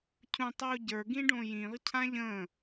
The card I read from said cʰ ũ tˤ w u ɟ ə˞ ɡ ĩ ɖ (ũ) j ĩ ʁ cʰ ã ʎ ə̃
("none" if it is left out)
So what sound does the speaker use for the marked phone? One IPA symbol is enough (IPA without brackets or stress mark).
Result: õ